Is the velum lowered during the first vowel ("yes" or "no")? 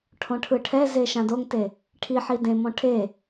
yes